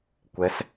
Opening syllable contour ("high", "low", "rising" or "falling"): rising